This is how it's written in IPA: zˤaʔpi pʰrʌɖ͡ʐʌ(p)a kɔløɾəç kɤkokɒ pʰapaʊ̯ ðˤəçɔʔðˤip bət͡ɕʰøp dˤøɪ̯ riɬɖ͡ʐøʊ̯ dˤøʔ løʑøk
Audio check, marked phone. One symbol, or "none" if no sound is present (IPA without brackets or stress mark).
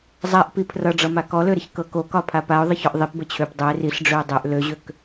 m